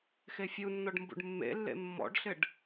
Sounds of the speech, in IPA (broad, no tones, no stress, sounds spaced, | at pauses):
x e fʲ u nː ɔ ɖ m b ṵ ɖ mː ḛ lː ḛ mː ɔ̰ ɖ ɬ ɪ ɖ